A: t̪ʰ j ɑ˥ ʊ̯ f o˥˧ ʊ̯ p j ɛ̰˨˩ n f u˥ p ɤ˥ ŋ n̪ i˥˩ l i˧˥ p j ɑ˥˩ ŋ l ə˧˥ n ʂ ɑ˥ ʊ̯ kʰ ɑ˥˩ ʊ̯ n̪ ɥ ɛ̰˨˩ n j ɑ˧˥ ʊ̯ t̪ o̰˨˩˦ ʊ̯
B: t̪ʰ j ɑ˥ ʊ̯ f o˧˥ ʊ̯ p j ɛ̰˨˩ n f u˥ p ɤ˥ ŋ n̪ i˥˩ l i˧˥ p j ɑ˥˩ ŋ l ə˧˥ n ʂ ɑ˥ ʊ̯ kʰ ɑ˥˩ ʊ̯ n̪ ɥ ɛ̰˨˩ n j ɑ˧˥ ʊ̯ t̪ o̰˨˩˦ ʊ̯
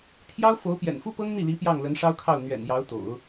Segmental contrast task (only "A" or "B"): B